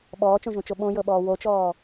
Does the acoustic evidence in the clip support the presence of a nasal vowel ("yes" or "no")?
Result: yes